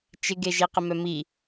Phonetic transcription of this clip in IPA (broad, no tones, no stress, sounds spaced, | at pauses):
t͡ʃ ɪ ɡ e ʒ i q ɪ m œ m i